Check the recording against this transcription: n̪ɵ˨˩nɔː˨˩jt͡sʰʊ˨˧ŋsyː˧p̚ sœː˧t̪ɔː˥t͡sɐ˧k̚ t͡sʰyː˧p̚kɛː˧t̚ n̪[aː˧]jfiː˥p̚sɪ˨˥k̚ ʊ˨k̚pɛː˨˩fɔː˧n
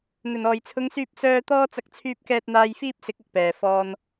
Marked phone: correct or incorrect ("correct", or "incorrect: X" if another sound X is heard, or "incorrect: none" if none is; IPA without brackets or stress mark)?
correct